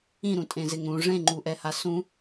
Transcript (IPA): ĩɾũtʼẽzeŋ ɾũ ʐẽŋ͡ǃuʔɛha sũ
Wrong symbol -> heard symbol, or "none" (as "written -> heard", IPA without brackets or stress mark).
none